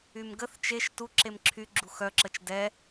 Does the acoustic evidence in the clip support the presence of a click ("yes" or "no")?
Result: yes